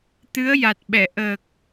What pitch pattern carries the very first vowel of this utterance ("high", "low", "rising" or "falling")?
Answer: rising